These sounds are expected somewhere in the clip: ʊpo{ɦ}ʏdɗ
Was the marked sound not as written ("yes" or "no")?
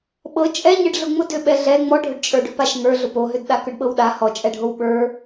no